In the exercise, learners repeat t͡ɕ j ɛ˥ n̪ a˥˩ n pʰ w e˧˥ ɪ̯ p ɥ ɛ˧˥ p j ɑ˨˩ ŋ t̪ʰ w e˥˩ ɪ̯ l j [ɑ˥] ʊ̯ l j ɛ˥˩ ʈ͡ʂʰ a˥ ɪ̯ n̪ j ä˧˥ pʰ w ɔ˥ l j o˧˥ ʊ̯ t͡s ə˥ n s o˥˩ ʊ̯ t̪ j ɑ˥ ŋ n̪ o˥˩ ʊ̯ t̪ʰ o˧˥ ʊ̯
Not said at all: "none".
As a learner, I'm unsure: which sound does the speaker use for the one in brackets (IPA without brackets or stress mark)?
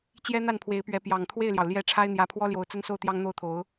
ɑ˩